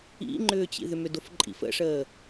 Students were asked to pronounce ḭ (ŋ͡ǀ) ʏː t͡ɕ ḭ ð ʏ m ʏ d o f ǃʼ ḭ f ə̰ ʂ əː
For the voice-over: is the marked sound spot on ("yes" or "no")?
no